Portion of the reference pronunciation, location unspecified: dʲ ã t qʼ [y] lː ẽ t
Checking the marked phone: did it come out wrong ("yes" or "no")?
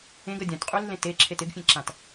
no